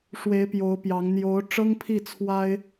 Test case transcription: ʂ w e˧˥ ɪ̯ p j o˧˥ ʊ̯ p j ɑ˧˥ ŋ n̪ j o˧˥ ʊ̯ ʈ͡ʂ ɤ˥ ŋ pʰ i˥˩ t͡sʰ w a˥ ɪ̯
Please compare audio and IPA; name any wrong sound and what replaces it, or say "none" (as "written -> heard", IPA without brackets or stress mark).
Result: none